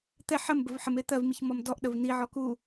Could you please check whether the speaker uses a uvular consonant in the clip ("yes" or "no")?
no